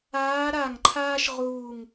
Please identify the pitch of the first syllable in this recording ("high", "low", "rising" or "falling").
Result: rising